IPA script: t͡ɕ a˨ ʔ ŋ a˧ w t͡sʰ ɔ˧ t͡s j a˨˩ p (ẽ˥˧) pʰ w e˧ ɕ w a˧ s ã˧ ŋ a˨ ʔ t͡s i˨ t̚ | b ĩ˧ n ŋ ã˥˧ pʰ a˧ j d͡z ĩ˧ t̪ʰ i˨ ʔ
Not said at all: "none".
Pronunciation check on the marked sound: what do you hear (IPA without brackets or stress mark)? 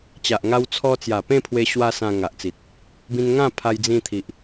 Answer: ẽ˥˧